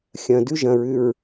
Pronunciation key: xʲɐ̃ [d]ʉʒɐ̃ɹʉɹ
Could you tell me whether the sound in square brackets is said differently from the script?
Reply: no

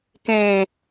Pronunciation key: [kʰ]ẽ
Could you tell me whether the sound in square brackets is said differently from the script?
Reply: yes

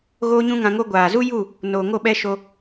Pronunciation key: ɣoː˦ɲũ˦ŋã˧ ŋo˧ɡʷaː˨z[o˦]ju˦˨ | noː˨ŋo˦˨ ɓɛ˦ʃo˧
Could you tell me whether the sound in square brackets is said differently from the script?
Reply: yes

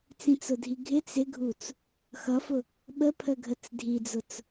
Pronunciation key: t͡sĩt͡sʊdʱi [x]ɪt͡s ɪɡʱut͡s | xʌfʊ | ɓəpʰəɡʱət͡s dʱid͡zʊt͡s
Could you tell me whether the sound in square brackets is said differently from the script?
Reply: yes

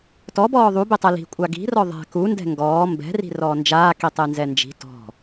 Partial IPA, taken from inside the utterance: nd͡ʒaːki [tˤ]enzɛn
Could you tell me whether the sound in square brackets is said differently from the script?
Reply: no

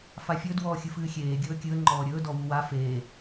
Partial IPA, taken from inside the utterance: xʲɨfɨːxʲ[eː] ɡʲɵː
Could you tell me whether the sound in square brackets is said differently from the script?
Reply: no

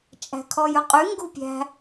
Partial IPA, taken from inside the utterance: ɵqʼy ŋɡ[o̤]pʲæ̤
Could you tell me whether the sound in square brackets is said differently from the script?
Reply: yes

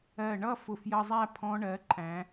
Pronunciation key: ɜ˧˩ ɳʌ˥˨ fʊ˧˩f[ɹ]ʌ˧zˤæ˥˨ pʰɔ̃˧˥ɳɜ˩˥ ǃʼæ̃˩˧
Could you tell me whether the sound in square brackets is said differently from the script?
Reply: yes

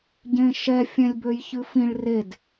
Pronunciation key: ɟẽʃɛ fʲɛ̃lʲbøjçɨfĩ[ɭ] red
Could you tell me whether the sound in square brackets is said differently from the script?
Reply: no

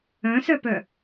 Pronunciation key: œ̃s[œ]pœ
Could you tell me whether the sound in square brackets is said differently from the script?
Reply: no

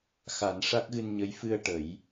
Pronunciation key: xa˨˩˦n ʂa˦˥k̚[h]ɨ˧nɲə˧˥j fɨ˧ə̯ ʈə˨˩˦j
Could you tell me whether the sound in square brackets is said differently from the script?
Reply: yes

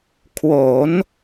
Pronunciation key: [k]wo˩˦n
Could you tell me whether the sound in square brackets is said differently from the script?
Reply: yes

